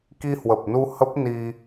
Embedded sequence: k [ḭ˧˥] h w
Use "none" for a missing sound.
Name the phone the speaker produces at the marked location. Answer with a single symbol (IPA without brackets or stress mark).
i˧